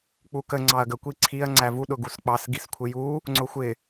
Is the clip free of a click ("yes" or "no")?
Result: no